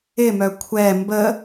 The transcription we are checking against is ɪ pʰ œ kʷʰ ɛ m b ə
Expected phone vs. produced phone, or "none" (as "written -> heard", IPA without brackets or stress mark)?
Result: pʰ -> m